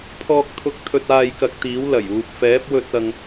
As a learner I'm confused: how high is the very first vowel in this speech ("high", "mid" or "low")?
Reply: mid